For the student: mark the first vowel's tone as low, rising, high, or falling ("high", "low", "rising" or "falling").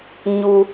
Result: high